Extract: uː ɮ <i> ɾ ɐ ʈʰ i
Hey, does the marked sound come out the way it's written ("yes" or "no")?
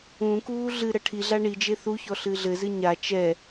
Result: no